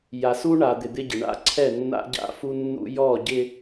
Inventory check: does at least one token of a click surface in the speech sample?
yes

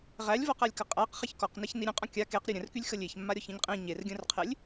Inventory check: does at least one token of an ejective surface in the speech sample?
yes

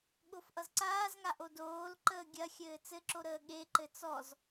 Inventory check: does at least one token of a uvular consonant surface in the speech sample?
no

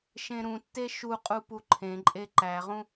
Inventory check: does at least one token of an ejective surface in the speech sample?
yes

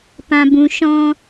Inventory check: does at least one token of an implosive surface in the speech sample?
no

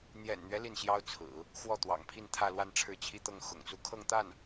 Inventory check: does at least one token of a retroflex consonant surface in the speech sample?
yes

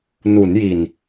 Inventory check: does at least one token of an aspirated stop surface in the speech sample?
no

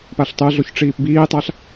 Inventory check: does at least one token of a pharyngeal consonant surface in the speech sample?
no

